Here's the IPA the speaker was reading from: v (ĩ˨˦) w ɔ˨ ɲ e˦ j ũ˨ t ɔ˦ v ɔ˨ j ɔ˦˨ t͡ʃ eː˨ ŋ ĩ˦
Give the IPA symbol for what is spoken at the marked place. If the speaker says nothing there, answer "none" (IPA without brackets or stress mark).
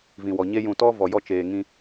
ĩ˨